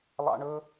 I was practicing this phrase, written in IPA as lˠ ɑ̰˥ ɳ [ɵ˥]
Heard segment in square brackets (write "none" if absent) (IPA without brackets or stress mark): ɵ˥